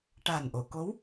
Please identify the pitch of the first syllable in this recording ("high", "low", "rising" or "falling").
low